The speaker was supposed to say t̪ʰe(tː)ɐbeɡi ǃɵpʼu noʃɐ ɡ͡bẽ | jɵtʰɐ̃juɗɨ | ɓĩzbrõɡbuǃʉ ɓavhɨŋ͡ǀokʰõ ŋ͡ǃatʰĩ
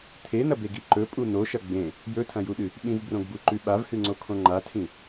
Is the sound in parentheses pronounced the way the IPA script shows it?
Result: no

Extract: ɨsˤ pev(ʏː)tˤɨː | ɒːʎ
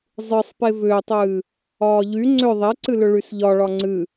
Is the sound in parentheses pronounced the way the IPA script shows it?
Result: yes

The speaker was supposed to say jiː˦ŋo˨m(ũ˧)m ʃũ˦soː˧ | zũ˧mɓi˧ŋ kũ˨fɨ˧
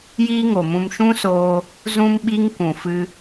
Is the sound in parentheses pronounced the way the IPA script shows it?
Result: yes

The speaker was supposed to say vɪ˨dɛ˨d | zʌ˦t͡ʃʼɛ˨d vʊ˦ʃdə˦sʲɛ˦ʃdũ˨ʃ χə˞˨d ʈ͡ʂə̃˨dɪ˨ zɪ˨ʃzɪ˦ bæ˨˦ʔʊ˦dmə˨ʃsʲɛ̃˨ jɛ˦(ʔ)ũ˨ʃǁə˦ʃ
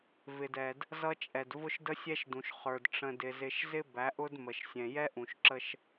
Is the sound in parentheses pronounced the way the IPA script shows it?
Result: yes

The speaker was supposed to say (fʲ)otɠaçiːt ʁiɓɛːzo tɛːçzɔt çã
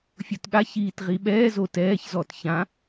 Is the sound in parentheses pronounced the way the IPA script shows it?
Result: yes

